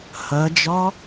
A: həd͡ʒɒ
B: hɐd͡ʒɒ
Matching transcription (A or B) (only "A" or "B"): B